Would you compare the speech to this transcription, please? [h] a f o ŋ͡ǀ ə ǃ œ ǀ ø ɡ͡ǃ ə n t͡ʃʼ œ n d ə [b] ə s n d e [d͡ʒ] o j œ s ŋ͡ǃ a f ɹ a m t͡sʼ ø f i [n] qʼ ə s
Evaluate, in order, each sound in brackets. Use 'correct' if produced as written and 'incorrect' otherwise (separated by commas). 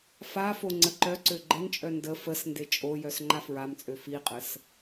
incorrect, incorrect, incorrect, incorrect